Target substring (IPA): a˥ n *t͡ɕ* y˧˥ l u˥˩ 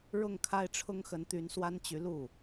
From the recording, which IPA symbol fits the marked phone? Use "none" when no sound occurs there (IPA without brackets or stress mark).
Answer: t͡ɕ